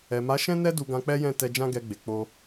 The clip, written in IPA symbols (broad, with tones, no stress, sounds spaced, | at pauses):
ɛ˨ m a˨˦ ʃ ɛ̃˦ n ɛ˦ d u˧ ɡ ã˧ k͡p ɛ˦ j ɛ̃˦˨ t ɛ˧ d͡ʒ ã˦ ɡ ɛ˧ ɡ͡b e˨ k͡p o˧